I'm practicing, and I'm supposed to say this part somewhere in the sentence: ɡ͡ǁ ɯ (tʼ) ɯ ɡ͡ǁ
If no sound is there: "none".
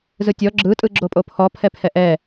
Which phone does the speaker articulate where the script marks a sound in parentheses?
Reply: tʼ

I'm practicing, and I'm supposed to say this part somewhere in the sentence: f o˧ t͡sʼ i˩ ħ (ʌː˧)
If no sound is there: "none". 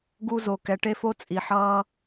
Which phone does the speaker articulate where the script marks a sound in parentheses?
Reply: ʌː˧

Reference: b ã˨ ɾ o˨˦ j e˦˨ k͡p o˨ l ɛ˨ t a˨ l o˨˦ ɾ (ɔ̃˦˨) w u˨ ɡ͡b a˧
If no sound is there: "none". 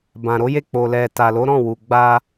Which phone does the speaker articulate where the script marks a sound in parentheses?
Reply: ɔ̃˦˨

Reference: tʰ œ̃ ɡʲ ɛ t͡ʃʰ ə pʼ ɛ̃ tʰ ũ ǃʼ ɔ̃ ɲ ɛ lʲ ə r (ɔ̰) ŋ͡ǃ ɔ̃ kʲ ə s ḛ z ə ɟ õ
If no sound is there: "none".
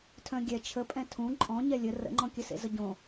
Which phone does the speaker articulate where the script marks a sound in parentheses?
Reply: ə̰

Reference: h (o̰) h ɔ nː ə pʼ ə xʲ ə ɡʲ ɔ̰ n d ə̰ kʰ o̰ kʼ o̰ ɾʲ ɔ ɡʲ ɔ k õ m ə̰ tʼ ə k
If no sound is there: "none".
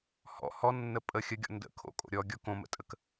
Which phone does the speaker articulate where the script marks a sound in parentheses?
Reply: ɔ̰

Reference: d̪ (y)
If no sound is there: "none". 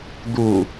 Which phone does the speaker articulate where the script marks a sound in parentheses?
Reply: u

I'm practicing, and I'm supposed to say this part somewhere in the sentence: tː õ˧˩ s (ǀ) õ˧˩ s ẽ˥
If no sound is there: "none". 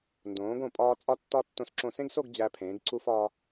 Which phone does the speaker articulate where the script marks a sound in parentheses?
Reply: ǁ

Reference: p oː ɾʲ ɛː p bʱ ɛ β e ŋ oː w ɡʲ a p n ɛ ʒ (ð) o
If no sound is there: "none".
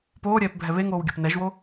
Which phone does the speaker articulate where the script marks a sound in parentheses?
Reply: w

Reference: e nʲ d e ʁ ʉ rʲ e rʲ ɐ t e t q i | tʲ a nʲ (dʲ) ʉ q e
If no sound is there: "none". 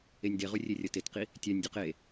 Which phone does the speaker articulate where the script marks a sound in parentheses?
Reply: dʲ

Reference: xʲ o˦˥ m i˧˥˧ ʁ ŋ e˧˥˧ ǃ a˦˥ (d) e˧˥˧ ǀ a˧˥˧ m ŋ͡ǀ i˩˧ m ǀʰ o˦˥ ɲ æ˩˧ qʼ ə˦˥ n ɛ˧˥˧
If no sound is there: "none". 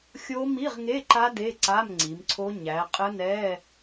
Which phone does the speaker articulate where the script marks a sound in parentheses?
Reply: d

